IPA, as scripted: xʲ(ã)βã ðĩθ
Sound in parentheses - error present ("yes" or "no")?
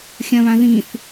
yes